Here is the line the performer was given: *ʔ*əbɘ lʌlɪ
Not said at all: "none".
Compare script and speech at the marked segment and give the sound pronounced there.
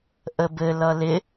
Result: ʔ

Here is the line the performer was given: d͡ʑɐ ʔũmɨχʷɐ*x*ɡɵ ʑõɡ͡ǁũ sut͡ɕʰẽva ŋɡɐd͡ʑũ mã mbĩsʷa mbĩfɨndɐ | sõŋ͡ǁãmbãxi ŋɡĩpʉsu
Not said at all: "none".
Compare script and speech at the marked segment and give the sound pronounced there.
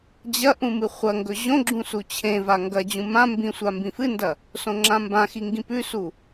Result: ŋ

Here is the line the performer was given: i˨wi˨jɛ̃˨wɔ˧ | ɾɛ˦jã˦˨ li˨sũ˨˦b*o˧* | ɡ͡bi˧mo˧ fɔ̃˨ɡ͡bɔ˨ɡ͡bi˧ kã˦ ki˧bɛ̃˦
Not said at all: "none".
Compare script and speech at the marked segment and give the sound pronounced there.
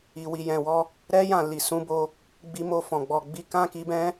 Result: o˧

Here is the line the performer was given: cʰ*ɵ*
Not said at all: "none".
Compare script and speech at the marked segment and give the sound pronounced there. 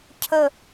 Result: ə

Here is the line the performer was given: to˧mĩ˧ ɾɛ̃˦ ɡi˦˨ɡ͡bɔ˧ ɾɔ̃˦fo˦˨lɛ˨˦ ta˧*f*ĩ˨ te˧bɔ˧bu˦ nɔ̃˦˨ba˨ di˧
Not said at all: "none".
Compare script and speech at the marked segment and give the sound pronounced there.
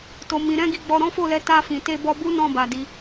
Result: f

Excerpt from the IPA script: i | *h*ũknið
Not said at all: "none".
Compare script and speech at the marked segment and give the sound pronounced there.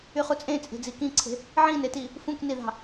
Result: f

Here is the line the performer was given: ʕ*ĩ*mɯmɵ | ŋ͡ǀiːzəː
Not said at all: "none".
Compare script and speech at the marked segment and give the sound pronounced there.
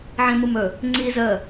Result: ĩ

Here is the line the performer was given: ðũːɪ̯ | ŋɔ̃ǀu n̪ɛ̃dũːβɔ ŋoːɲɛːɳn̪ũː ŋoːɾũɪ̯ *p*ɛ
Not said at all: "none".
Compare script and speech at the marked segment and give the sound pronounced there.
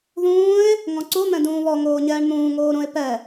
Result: p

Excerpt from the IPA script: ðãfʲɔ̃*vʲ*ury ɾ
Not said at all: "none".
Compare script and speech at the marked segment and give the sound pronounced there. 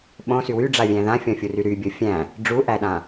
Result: fʲ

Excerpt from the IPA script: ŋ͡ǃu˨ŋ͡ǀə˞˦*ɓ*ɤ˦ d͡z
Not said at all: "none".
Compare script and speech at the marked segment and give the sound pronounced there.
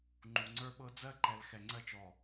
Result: ɓ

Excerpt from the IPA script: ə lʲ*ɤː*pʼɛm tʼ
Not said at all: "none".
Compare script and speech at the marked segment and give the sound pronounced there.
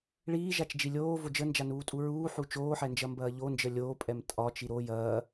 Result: oː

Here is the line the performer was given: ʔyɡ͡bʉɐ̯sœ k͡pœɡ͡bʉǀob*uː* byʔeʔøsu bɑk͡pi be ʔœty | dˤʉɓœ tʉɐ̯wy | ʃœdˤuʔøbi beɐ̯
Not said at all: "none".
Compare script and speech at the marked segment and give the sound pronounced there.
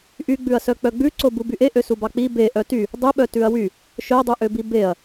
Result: u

